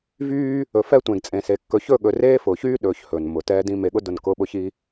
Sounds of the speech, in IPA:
v yː˦ | ɵ˨ f ɛ˦ tʷ ẽ˨ ɡ t͡sʼ ẽ˨ s e˨ kː ɵ˨ ç ɵ˦˨ ɠ ɵ˨ r eː˦ f ʊː˨ ç yː˦ ɗ ɵː˨ ç h ɵː˨ n m ʊ˨ t ɛː˦ d ĩ˦ m e˨ ɠ ʊ˦ d ʊ˦˨ n k ʊː˦ ɓ ʊ˦ ç i˦

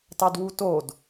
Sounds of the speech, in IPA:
t ɑ d w u t o d

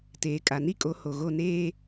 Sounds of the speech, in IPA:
t eː˨ kʼ a˨ n i˦ kʼ o˨˦ h o˨ ɣ o˦˨ n eː˦

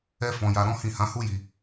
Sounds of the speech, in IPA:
ɛ˦ f ɔ̃˧ j a˧ ɾ ɔ̃˦ h ĩ˦˨ h ã˨˦ h u˦ j i˧

